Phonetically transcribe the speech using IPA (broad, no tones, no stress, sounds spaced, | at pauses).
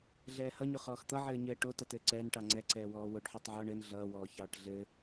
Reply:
ɮ ɛː h ʌ ɲ o χ ɔː x t̪ ʌ ʕ ɘː ɲ ɘː ʈ o t ʌ t ɘː ǀ ɛː n ʈ ɑ ŋ͡ǀ ɛ ǀ ɛː w ɔː w o ɖ ħ əː tˤ ʕ ɔ ɳ ɘ n ɮ ʌː w ɔː ç ɑː ʈ ɮ ɘ